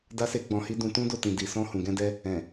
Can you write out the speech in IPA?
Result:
da˦se˦ɡ͡bɔ̃˧hi˦ dũ˧tũ˦do˦˨ tĩ˧di˧ sɔ̃˦ hũ˧ɡɛ̃˦dɛ˦ | ɛ̃˨

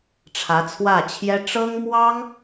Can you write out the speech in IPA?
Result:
ʈ͡ʂʰä˧˥t͡sʰwä˥˩t͡ɕʰjɛ˥ ʈ͡ʂɤ˥ŋmwɑ˥ŋ

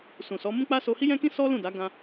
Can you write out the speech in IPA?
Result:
sũ˨sɔ˨˦ mũ˦k͡pa˦ so˧hi˦jɛ̃˦kĩ˦ sɔ˦ lũ˦˨ da˨˦ ɡã˧

